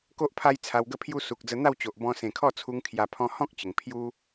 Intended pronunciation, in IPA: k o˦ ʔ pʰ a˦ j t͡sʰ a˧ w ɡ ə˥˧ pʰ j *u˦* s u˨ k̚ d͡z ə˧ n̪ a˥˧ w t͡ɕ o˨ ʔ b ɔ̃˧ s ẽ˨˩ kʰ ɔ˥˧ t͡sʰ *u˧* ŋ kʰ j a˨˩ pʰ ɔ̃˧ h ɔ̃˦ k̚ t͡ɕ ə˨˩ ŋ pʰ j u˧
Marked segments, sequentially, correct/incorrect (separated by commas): correct, correct